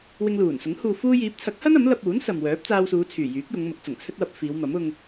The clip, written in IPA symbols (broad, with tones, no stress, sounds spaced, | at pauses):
w ɪ˧ ŋ l uː˨˩ n s ʊ˨˥ ŋ h uː˨ f uː˧ j iː˨˥ p̚ t͡sʰ ɐ˨˥ k̚ h ɐ˥ n ɐ˨˥ m l ɐ˧ p̚ uː˨˥ n s ɐ˨ m w œː˨˥ p̚ t͡s aː˧ w s uː˨˧ t͡sʰ yː˨˩ j yː˨˥ k̚ j ʊ˨˧ ŋ m ʊ˨˥ k̚ t͡s ʊ˨˩ ŋ t͡sʰ ɵ˥ t̚ w ɐ˧ p̚ f iː˨˧ w m ɐ˨˥ m ʊ˧ ŋ